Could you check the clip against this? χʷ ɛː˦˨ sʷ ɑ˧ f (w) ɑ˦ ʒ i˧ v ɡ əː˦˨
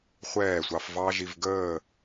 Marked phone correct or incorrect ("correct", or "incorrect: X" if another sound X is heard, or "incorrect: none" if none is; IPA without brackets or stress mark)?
incorrect: v